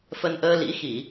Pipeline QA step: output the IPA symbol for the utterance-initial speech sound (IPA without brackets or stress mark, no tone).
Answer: f